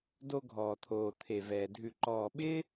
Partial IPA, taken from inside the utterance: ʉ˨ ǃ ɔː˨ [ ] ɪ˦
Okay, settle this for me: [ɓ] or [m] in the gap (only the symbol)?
ɓ